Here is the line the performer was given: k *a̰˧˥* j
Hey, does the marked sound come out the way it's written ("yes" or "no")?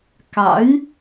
yes